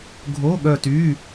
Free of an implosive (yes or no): no